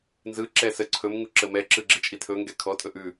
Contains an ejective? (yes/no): yes